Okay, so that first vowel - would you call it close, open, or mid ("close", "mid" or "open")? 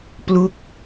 close